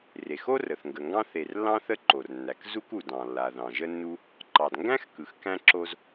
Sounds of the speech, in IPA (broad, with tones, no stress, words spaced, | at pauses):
re˩xo˥rə˩θ ŋɡə˩ŋɡɑ̃˥ θe˩rlːɑ̃˥ θə˥ǃo˩rnːæ˩kzu˥k u˩dɑ̃˩ lːa˩ðɑ̃˩ʒə˥nːu˥ | ǃɑ˩dŋɡæ̃˥xkɯ˩x kæ̃˥ǁo˥z